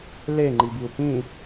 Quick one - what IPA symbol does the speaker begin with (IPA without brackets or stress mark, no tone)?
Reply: l